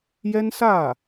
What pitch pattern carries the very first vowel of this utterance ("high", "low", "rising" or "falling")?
high